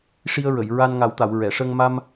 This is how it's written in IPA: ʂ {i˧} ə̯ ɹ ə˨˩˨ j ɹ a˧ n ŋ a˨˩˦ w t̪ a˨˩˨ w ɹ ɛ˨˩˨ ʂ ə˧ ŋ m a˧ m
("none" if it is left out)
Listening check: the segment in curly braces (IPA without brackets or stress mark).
i˧